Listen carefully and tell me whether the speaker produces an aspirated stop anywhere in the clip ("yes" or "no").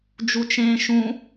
no